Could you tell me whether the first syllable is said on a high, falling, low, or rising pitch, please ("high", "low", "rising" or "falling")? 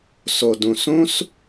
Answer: low